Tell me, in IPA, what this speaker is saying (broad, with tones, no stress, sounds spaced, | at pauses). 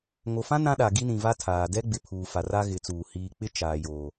ŋ o˨ f ã˦ n ã˦ ɗ a˨ ɡ i˦ n ĩ˨ v a˦ tʰ aː˨ d ɛ˦ ɡ͡b ɪ˨ pʰ uː˨ f a˨ r a˦ ɣ ɪ˨˦ t͡s uː˨ h iː˨ k͡p ɪ˦ t͡ʃ aː˨ j oː˨